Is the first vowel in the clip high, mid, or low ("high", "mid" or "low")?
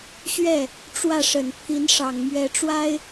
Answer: mid